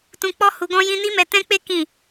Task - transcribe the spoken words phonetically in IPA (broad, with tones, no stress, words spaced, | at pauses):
tũ˧k͡pɔ˦ hu˧ɡɔ̃˦jĩ˦ ni˦mɛ˧ tɛ̃˦k͡pe˦ kĩ˦˨